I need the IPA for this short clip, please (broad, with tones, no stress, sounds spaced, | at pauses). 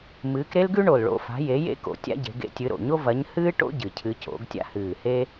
m ɨː˨˦ k ɾ e˥ l ɡ ʉ˥ ɳ o˨˩ l ɭ o̰˨˦ f a̤˨˦ j e˨˦ j ḛ˥ k o̰˨˦ tʲ a̰˥ ɟ e̤˨˦ ɡ ḛ˥ tʲ ɨ˨˦ ɾ o̰˨˩ ɲ o˥ v ɐ˨˦ ɲ h ɨː˥ ʈ o̰˥ ɟ ɨ˨˩ cʰ ɨ˨˦ c o̰˨˦ ɡ tʲ a̰˥ h ɨː˨˩ h e˥